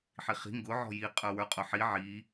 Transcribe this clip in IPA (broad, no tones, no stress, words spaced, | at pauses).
ħiχi̤ ŋɡʊ ʕɔ̤ji qʼə˞wə˞qʼʊħi ʕi